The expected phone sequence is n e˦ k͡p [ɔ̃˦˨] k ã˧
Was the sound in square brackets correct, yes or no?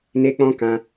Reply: no